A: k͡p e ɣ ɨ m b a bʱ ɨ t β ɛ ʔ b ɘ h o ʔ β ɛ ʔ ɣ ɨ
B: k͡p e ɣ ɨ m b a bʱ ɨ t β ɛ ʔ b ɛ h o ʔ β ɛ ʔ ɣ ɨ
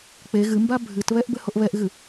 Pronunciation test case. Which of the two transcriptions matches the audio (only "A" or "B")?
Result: A